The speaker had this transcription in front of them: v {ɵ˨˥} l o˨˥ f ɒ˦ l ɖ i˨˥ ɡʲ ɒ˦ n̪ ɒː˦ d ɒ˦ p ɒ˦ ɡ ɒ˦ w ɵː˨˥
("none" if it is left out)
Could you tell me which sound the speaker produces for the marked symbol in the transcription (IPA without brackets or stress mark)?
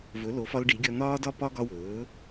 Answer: ɵ˨˥